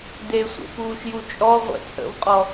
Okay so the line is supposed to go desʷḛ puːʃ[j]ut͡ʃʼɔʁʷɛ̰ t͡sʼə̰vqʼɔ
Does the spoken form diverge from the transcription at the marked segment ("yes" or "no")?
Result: no